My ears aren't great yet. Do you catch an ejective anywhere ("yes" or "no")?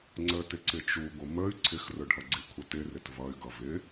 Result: no